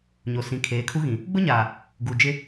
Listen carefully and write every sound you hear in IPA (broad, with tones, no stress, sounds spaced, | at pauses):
ɲ o˨ s ĩ˨ kʰ eː˨˦ kʰ u˦ ɣ ĩ˨ | ɡ͡b ʊ˦ ɲ aː˨ | ɡ u˨ d͡ʒ ɪ˦